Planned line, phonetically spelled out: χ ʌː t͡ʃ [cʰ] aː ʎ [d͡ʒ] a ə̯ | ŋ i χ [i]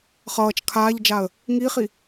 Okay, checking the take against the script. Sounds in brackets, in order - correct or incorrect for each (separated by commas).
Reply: incorrect, correct, correct